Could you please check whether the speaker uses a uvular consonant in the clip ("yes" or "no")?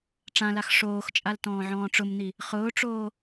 yes